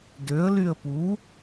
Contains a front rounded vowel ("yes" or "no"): yes